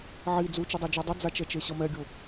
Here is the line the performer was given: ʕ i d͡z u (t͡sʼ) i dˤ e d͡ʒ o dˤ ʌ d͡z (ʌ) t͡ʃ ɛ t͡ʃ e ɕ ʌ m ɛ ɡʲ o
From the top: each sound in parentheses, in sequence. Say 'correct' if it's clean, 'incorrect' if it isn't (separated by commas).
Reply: incorrect, incorrect